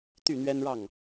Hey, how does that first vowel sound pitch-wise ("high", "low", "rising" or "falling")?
falling